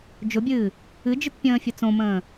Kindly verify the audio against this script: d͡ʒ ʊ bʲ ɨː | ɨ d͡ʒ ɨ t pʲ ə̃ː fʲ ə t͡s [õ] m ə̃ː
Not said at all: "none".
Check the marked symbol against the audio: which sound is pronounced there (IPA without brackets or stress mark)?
õ